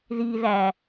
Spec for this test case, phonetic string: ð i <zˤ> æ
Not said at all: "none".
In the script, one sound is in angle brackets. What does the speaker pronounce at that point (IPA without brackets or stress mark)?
ð